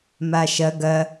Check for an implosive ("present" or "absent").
absent